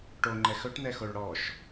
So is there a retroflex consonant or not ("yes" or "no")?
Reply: yes